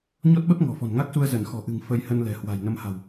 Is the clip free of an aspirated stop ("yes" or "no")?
yes